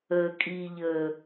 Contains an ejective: yes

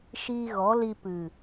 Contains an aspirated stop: no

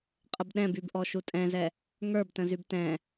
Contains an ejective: yes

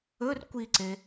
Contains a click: yes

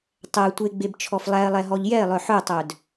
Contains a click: no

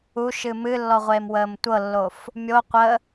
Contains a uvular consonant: yes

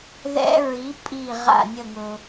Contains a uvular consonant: yes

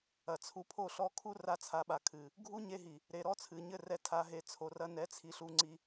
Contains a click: yes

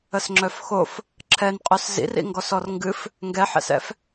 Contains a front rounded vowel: yes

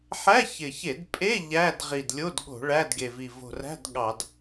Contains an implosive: yes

